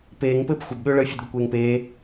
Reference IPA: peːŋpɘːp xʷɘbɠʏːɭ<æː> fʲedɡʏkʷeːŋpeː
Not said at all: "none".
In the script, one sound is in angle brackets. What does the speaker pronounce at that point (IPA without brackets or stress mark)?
əː